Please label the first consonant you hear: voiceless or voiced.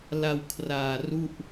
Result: voiced